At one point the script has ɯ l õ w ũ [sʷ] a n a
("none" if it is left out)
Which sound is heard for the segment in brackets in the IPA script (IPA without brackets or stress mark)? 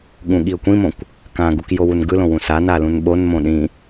s